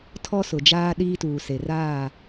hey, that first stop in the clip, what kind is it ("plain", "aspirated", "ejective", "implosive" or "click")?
aspirated